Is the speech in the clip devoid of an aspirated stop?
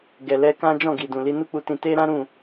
yes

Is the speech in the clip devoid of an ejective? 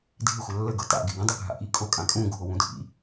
no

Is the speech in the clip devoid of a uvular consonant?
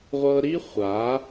no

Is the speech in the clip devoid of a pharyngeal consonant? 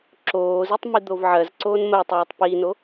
no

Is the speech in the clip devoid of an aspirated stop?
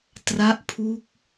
no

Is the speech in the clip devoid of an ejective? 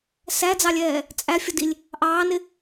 no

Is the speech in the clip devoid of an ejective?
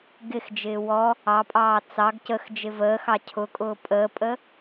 no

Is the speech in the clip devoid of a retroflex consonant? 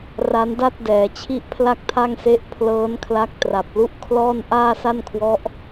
yes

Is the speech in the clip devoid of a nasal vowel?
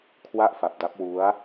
yes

